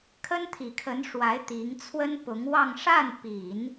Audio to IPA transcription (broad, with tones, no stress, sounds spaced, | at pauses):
kʰ ə˥ n t̪ʰ i˨˩ kʰ ə˧˥ n ʂ w a˧˥ ɪ̯ t̪ i˧˥ ŋ t͡sʰ w ə˥ n p ʊ˧˥ ŋ w ɑ˥˧ ŋ ʂ a˥˩ n p i˨˩˦ n